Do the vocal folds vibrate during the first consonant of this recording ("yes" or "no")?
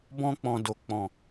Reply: yes